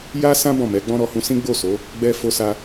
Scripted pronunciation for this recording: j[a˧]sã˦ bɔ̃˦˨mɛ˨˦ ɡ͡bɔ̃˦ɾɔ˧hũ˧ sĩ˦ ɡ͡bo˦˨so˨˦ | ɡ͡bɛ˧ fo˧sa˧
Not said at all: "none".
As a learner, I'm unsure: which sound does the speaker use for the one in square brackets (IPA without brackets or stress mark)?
a˦